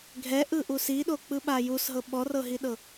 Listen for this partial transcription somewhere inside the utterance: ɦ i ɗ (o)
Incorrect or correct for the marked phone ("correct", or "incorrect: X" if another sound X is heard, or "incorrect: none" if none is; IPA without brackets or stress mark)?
incorrect: ɤ